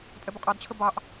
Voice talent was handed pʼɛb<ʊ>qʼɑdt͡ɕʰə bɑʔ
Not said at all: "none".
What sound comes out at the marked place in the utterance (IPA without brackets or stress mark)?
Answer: ʊ